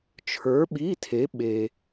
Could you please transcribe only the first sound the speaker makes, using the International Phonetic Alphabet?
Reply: t͡ʃʰ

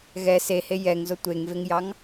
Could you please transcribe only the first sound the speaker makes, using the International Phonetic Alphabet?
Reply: ɣ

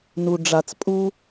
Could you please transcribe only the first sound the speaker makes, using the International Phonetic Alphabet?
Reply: n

